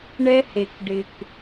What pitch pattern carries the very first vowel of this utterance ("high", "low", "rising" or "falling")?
high